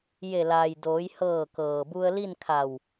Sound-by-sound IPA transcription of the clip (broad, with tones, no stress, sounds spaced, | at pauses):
j e˧˩ l aː˩ j d oː˩˧ j h ɤː˧˩ k ɤː˩ b u˧ ə̯ l i˥˨ n kʰ a˧˩ w